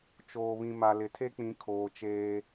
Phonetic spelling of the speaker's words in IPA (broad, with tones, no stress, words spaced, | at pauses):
t͡ʃoː˨βĩ˨ma˨ lɪ˨tʰe˦k͡pĩ˨˦ kʰoː˨t͡ʃeː˦